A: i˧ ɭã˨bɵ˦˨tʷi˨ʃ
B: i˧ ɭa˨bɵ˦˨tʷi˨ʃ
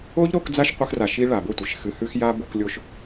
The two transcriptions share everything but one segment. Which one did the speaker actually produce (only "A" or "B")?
B